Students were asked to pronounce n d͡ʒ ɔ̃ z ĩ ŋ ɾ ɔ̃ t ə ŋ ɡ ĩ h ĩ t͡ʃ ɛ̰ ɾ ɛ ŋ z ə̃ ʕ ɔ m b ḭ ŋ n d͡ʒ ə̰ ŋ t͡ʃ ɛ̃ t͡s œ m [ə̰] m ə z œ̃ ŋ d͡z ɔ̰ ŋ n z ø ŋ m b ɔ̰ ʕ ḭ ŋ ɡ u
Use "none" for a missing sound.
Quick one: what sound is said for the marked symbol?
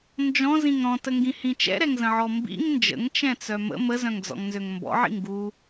ə̰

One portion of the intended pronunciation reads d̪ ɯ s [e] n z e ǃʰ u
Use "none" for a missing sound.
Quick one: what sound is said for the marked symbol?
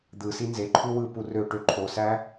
i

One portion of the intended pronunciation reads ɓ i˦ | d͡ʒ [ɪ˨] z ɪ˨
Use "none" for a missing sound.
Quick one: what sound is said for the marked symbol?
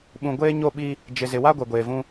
ɪ˨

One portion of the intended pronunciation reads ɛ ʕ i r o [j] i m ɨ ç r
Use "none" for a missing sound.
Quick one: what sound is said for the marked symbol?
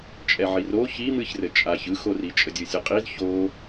ç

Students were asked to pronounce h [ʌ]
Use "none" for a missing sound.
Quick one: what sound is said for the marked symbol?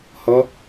ʌ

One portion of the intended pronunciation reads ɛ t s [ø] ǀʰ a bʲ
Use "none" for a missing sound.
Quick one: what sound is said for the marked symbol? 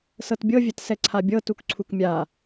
ɛ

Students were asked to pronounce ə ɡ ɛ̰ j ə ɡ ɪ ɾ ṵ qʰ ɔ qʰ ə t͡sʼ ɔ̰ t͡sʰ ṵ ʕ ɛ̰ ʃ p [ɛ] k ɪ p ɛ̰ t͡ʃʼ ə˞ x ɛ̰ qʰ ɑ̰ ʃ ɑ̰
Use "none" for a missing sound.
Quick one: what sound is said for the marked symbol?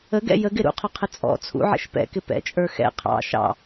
ɛ̰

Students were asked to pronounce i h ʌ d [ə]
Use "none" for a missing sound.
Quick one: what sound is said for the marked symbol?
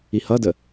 ə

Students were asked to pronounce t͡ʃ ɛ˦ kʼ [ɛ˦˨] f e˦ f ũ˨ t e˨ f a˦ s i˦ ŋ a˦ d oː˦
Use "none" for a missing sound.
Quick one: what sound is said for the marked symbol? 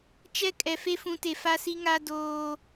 ɛ˨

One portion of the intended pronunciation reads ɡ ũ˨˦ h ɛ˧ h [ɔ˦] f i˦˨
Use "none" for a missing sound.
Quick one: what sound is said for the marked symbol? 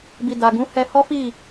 ɔ˦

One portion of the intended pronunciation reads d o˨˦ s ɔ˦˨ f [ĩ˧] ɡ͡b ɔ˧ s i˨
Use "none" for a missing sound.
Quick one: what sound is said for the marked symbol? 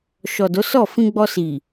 ĩ˧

